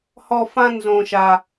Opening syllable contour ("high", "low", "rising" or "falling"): high